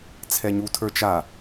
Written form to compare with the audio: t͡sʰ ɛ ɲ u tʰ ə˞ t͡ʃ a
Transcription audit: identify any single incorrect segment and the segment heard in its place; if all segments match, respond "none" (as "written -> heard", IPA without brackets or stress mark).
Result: none